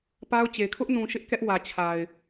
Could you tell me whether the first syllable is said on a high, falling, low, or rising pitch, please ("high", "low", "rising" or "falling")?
high